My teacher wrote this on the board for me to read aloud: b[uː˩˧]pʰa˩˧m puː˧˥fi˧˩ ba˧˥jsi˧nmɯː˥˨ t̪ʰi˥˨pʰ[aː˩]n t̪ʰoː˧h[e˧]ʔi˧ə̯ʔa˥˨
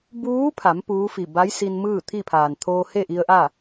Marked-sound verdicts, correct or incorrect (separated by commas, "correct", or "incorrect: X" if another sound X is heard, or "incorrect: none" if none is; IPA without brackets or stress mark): incorrect: uː˧˥, correct, incorrect: e˥˨